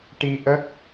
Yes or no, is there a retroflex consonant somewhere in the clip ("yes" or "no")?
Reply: yes